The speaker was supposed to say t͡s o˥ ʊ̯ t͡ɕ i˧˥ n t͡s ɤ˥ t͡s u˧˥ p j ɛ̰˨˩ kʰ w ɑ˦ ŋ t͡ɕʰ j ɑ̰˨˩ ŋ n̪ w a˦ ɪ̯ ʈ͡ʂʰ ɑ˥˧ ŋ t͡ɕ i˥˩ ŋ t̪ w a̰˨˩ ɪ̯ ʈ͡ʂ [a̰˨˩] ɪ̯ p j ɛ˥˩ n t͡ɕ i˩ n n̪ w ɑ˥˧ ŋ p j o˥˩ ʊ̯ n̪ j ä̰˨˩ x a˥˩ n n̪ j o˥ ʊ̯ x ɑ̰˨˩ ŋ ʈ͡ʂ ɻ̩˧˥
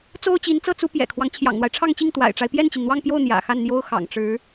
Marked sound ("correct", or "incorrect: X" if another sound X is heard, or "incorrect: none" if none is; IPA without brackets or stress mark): incorrect: a˦